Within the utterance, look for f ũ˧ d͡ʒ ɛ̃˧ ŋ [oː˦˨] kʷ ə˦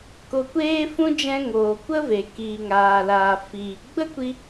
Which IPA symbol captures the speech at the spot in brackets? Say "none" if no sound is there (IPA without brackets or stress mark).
oː˨